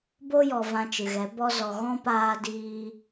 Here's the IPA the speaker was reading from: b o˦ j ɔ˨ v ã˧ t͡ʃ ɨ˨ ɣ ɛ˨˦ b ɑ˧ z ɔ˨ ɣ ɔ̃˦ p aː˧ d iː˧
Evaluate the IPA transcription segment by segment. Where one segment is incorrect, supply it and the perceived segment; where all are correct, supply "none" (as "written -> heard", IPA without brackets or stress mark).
ɑ˧ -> ɔ˧